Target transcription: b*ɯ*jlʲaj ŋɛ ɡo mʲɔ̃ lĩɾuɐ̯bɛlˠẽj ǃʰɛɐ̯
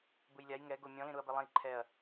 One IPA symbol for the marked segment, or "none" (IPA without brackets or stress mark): ɯ